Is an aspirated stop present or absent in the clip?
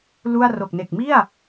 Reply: absent